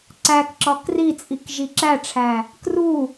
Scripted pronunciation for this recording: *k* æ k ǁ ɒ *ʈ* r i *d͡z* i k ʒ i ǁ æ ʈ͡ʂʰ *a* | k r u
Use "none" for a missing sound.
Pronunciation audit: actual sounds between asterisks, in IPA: ǀ, k, t͡sʼ, æ

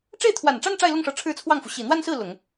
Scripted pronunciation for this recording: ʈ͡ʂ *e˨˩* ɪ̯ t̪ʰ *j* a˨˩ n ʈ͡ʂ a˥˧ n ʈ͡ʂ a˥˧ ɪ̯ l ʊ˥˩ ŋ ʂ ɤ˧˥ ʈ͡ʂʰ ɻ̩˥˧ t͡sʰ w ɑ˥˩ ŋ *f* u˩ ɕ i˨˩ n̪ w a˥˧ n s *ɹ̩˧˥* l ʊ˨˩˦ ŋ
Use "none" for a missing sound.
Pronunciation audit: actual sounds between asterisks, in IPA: e˥˩, w, f, ɹ̩˥˩

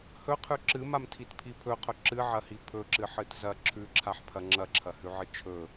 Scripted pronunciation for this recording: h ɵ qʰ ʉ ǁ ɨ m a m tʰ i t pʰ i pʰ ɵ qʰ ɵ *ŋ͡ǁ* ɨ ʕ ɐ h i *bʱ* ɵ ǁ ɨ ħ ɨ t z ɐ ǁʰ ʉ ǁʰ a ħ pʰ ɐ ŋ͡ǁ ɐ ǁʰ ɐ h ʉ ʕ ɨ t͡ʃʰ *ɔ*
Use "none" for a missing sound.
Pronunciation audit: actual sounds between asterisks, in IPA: ǁ, pʰ, ɵ

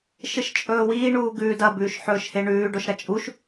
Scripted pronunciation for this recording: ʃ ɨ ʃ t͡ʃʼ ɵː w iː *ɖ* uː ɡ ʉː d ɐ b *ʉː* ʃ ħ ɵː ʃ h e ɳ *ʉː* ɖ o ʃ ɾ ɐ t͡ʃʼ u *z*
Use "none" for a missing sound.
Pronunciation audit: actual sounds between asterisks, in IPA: ɳ, ʉː, ʉː, ʃ

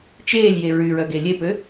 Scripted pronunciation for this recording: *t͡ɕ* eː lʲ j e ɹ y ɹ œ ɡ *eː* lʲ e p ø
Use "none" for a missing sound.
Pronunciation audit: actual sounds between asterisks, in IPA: t͡ʃ, e

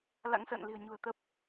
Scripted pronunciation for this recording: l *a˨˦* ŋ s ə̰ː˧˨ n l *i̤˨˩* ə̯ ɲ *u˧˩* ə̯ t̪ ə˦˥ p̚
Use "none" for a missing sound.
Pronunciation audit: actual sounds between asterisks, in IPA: a̰˧˥, i̤˨˩, ṳ˨˩

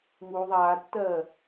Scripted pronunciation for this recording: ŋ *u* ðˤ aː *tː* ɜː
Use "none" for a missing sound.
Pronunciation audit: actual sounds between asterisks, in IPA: u, tː

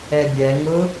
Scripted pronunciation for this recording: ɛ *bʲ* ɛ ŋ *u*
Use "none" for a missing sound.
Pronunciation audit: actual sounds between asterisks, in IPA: bʲ, ʊ

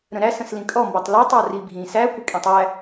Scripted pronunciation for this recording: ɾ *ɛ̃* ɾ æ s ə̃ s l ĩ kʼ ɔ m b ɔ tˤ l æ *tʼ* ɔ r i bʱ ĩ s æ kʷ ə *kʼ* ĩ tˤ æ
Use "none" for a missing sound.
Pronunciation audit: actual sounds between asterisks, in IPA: ə̃, tˤ, kʼ

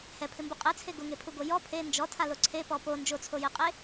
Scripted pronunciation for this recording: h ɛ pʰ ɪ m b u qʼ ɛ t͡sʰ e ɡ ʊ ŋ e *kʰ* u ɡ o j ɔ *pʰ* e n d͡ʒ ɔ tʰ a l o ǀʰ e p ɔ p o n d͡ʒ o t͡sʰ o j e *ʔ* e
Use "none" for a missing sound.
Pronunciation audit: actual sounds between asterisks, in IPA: pʰ, pʰ, qʼ

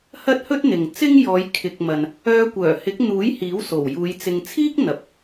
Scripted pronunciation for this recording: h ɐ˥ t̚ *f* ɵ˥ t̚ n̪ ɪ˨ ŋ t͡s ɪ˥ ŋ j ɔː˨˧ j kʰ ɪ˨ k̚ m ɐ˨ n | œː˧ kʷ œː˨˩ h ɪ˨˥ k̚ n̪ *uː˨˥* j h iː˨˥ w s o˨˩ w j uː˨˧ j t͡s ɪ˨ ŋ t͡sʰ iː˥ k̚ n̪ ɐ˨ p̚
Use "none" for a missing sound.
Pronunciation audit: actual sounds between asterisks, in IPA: h, uː˨˥

